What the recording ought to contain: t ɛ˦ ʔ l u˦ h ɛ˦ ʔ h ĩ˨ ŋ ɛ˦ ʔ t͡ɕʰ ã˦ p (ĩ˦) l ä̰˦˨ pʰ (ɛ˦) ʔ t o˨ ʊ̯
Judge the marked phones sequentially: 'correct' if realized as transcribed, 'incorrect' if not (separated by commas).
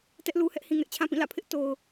incorrect, incorrect